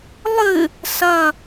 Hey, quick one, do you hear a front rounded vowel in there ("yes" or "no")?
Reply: no